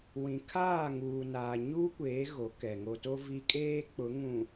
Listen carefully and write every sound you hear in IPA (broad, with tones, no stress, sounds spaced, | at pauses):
w ĩ˨ kʰ aː˦˨ ŋ uː˨ n aː˨ ɲ uː˦ kʷ eː˨˦ ɣ o˨˦ k ɛ˨ ŋ o˨ t o˦ v i˦ kʼ eː˦ k͡p ʊ˨˦ ŋ ũ˨